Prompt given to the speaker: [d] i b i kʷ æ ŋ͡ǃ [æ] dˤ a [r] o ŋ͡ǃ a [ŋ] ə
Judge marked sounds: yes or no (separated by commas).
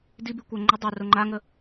yes, no, yes, yes